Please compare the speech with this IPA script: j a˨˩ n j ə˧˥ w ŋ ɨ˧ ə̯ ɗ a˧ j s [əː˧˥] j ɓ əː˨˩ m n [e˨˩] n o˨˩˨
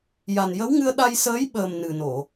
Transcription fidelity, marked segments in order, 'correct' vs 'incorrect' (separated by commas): correct, incorrect